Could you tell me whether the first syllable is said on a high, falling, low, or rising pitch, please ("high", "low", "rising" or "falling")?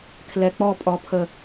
low